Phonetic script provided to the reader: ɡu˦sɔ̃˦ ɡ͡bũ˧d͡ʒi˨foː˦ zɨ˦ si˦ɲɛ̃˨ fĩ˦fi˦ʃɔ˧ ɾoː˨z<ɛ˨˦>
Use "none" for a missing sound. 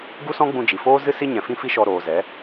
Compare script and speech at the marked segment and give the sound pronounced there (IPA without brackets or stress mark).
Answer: ɛ˨˦